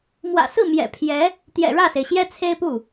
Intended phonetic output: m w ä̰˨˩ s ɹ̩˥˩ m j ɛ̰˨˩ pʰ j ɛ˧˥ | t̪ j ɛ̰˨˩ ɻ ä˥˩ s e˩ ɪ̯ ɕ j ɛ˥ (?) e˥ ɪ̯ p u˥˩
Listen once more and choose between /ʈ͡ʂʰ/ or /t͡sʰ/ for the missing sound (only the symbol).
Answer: t͡sʰ